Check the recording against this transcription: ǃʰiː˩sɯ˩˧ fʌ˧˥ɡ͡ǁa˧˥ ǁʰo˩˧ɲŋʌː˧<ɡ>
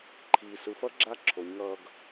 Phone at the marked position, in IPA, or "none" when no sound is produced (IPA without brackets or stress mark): ɡ